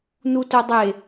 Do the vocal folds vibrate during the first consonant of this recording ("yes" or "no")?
yes